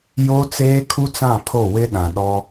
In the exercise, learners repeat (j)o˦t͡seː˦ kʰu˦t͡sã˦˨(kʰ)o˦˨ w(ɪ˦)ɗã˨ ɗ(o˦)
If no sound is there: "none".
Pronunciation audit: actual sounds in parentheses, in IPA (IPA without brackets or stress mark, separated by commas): j, pʰ, ɪ˦, ɔ˦